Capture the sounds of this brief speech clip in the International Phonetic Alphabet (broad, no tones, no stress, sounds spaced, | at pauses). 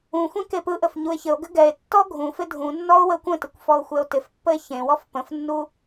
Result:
ũ xʷ ẽ k e p ɯ ʔ ə f ɲ u e̯ ç ɘ o̯ ɡ ɘ ɡ ɛ e̯ tː ɔ ɡʱ ũ f ɪ dʱ ũ nː ɔ o̯ w ə kʷ ə̃ t ɪ kʷ f ɔ o̯ xʷ ɛ o̯ t ɪ f pː ə e̯ ç ẽ w ɔ f p ə̃ f nː u